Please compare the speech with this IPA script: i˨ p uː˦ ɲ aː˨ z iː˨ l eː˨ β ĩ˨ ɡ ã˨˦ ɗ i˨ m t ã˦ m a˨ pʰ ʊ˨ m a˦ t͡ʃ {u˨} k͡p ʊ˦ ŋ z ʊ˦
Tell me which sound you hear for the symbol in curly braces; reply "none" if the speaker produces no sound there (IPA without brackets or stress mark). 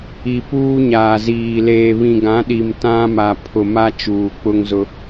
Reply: uː˨